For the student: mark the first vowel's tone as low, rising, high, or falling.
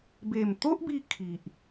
low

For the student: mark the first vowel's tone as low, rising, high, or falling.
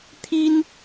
high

